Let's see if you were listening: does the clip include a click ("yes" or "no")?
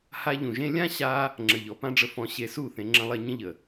yes